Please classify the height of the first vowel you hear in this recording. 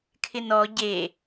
high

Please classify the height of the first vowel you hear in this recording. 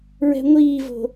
mid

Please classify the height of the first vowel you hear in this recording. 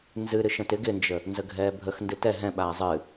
high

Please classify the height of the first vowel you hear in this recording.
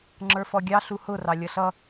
mid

